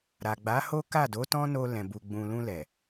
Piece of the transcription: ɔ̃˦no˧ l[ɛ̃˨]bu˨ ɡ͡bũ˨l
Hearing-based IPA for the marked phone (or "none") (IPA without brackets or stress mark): ɛ̃˨